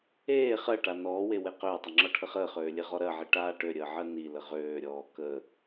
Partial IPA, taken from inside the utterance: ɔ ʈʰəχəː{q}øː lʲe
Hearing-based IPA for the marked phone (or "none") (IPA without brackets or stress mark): χ